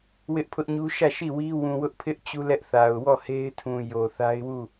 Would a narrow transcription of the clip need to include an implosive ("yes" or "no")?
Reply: no